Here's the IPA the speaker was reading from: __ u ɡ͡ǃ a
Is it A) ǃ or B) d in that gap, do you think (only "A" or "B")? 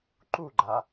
A